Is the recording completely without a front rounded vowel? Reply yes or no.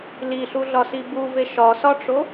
yes